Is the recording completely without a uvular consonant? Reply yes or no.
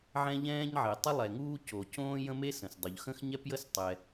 yes